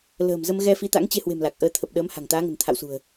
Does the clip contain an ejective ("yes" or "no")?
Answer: no